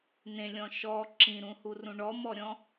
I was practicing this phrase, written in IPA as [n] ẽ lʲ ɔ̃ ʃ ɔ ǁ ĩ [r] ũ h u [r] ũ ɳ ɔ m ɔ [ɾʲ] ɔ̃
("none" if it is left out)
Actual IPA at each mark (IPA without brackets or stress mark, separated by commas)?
n, ɾ, r, ɾʲ